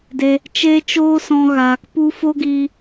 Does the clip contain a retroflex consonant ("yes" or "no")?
no